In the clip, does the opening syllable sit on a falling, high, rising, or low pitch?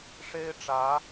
high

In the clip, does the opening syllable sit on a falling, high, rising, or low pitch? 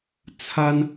high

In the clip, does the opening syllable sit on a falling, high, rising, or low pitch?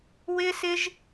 high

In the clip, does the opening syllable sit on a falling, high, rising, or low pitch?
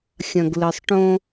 low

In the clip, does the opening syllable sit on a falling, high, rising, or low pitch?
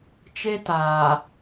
high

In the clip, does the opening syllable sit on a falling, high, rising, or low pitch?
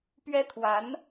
high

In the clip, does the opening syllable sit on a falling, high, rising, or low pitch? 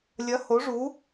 rising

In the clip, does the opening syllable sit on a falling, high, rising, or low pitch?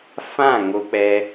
falling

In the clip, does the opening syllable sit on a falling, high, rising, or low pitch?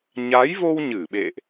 rising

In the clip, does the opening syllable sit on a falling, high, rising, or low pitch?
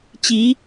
rising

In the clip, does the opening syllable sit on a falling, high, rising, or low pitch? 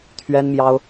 high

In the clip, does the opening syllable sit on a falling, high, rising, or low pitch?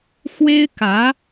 high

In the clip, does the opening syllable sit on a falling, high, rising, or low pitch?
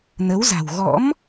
rising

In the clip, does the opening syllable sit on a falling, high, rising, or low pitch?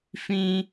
high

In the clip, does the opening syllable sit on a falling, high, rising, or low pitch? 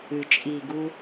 low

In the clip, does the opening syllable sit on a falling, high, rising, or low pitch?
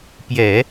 low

